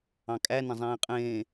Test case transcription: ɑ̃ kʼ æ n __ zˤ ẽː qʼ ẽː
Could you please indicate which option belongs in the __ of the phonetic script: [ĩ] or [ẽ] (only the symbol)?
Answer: ẽ